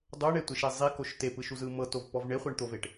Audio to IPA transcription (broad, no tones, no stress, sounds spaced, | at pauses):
dˤ o ɳ e tʷ e ʃ e zˤ i k o ʃ t e p ɯ ʃ u z ɯ m ɤ t o v p ɔ v ɳ e χʷ e ɳ t̪ o v e ʈ